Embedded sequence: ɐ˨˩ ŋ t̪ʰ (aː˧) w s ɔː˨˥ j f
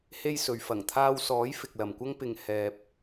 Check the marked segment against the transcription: correct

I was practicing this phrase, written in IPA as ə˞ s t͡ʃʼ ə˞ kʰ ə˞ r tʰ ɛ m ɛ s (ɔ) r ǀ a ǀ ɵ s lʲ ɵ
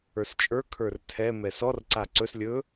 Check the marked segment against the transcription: correct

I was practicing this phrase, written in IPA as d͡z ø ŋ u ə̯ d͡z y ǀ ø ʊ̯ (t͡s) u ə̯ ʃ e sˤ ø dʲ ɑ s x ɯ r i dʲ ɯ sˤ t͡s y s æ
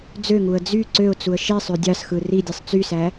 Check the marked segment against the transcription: correct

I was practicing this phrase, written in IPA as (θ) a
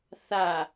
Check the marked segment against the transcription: correct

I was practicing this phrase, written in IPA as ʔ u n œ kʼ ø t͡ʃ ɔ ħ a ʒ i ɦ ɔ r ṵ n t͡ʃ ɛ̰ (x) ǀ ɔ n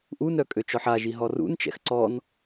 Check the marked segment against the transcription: correct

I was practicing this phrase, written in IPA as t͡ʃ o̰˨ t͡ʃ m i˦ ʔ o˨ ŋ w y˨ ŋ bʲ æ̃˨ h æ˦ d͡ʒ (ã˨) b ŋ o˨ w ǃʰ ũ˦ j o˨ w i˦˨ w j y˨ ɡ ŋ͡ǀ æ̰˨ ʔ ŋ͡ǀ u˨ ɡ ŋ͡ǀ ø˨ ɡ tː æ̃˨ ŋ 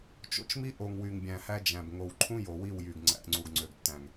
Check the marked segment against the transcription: incorrect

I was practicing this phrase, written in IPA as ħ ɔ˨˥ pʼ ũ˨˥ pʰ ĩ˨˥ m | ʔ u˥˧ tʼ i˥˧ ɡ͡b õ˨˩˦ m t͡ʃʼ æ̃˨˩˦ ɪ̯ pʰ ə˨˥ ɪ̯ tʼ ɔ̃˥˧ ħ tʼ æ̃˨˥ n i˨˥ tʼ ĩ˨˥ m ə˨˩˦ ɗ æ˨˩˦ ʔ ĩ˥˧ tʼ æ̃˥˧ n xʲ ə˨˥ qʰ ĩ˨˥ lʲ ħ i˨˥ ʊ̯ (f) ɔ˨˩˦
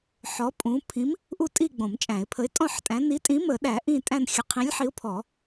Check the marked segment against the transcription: incorrect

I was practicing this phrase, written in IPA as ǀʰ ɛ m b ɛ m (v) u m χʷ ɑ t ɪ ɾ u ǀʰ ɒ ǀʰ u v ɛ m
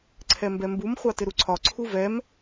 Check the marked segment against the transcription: incorrect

